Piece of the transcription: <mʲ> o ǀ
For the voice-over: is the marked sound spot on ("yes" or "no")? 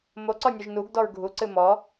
no